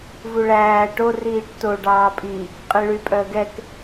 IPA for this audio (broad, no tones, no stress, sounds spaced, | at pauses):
v u ɭ æː ʈ o r iː ʈ t o ɖ ɑː pʼ i | qʼ i ɭ y pʼ œ ə̯ ɡ ɛ k